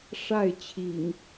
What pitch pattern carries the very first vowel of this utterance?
falling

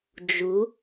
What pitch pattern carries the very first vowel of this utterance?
rising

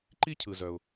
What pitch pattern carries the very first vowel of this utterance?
high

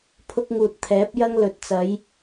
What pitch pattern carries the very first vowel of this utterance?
high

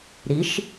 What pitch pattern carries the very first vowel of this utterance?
rising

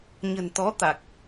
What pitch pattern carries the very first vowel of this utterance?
low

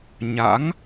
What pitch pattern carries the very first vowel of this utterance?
rising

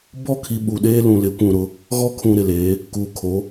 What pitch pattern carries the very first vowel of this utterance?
falling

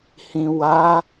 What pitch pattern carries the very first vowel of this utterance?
low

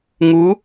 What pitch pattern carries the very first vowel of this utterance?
rising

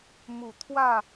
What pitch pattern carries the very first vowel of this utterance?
low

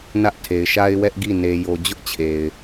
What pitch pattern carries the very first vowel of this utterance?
high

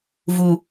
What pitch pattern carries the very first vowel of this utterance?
low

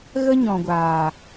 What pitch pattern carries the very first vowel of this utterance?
high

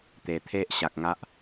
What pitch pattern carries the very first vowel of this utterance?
low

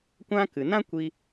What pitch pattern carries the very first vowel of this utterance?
high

